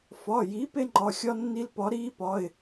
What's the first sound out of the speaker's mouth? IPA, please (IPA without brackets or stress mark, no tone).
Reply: f